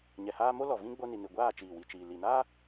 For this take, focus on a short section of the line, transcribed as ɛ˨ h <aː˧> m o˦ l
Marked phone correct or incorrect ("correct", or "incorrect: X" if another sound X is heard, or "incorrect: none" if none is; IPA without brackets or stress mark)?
correct